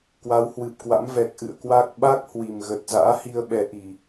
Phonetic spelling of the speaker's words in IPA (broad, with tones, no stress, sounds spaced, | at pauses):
k w a˨˦ w h w ɨ˨˩ p̚ k w a̰˧˥ m v ɛ˨˩ k̚ ʔ ɨ̰˧˨ ə̯ k w a˦˥ k̚ ɓ a˦˥ k̚ h w i˨˩ m ɣ ə˨˩ t̚ z a̰ː˧˥ h i˧ ə̯ ɓ ɛ˨˦ ʔ i˨˩